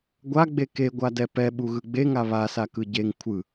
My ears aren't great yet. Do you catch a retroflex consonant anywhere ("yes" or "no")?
no